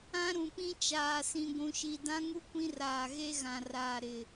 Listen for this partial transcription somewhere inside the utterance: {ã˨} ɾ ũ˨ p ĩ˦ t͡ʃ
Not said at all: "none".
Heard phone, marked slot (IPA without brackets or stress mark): ã˦